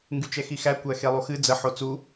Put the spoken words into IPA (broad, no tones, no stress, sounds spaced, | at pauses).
ŋ ɡ y t͡ʃ ɛ x i x æ kʷ æ x e lˠ u x ɨ d͡z ə ħ o t͡s u